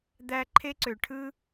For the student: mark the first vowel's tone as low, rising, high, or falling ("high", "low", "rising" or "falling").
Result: high